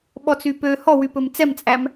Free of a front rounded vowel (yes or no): no